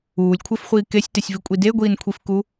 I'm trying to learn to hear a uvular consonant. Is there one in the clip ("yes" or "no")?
yes